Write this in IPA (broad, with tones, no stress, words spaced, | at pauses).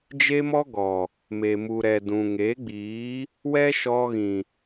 d͡ʒe˦mɔ˦ɡɔ˨ | me˨mu˨ɾɛ˨dũ˨ ŋe˨˦ɡ͡biː˨˦ | wɛ˦ʃɔ˧ɣĩ˨